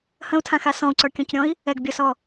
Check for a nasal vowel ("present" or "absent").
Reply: present